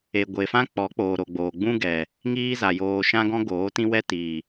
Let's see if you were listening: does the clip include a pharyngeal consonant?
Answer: no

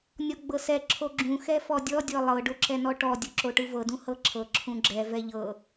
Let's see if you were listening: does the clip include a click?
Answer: yes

